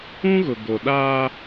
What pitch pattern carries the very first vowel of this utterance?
high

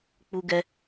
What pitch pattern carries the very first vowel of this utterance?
high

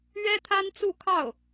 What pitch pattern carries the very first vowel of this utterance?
high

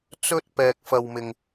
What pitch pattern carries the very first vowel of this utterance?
high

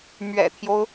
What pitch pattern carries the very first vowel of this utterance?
low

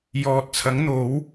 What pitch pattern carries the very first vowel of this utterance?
low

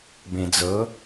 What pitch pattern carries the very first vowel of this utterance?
low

